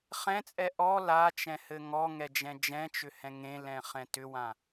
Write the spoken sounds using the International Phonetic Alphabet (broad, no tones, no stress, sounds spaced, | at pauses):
χ ɛ̃ t͡sʼ ɛ ʔ ɔ l a t͡ʃ ɛ̃ h ɘ ŋ ɔ ŋ ɛ d͡ʒ ɛ̃ d͡ʒ ɛ̃ t͡ʃ ʏ h ɛ̃ ŋ ẽ l ɛ̃ χ ɛ̃ t ʏ w ã